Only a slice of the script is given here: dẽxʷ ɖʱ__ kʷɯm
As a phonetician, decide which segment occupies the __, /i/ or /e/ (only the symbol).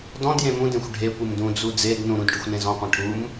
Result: e